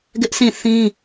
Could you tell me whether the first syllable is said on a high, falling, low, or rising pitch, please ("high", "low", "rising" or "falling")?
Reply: high